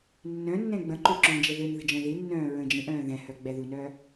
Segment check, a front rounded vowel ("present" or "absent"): present